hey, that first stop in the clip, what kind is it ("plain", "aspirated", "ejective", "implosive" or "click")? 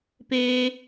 plain